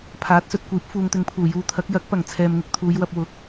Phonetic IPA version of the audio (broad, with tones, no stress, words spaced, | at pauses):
pʰaː˨˥t̚sɵ˨t̚kʷiː˨˥p̚ fuː˨ŋt̪ɪ˧ŋpʰuː˨˩ juː˧t̪ʰɐ˨˥k̚ jɐ˨˥k̚pɐ˨˩ŋ t͡sʰɛː˨mŋɪ˧k̚t̪ʰuː˨˧jwɐ˧p̚ wʊ˨˥k̚